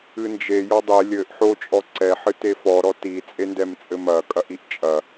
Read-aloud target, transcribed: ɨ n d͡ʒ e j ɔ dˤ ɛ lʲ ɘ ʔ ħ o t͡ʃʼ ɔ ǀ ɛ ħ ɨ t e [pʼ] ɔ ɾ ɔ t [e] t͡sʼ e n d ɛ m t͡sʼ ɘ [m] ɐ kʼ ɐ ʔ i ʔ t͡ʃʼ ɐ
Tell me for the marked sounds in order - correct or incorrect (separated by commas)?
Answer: incorrect, incorrect, correct